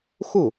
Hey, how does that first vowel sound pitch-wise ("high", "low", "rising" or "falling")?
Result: falling